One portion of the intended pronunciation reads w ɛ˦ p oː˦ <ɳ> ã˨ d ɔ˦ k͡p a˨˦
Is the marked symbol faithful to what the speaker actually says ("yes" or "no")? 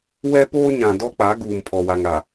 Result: no